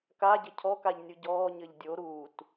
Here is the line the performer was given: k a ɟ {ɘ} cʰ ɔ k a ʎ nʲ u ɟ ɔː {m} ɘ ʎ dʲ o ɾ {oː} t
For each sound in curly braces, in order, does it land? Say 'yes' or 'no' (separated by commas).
yes, no, no